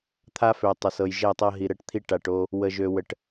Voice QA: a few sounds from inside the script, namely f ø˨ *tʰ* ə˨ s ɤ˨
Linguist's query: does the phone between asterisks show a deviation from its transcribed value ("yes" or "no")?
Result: yes